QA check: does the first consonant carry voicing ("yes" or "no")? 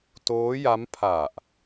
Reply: no